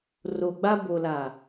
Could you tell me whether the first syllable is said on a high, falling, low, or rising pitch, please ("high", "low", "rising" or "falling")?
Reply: low